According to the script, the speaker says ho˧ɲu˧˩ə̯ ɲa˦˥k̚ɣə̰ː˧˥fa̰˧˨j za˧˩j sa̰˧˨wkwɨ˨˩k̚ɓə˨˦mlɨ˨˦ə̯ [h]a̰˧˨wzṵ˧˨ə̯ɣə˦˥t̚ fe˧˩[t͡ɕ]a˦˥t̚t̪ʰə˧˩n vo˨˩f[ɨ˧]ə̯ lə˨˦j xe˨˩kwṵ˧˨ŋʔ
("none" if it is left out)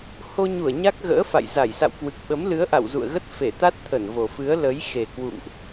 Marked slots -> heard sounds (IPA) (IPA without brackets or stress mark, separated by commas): ʔ, t̪, ɨ˨˦